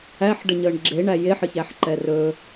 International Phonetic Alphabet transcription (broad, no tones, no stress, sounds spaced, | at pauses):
æ ħ ɖ ə ɲ əː ɳ ɡ͡ǁ e ɳ æ j e ħ ə ç æ ħ ǃ ɛ r ɵ